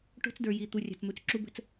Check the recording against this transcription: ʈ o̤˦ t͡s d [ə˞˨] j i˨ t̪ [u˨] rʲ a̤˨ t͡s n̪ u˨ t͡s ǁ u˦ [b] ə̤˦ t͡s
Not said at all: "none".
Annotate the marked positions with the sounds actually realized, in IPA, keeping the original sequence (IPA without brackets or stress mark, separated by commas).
ə˞˨, u˨, b